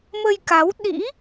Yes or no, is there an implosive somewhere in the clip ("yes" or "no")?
yes